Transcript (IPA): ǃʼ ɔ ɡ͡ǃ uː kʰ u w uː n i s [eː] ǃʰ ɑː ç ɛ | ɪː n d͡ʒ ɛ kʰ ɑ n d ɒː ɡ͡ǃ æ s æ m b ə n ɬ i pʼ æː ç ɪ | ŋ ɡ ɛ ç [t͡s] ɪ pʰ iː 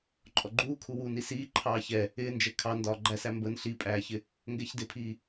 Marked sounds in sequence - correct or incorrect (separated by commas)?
incorrect, incorrect